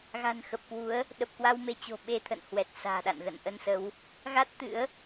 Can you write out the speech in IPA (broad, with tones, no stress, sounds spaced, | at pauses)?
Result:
ɣ a̤˨˩ n x ə˨˩ p̚ k w u˨˦ ə̯ | ɗ ə˨˩ p̚ k w a˧ w m e˧ t͡ɕ o̤˨˩ ɓ e˧ t̪ʰ ə̰˧˨ n h w ɛ˨˩ t̚ s a̤ː˨˩ ɗ a̰˧˨ n ɣ ə̰˧˨ n ʔ ə˧ n s ə˨˦ w | ɣ a˦˥ t̚ t̪ ɨ̰˧˥ ə̯